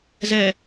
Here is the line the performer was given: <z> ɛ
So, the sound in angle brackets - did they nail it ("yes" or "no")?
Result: yes